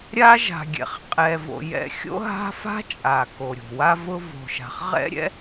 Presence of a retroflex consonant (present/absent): absent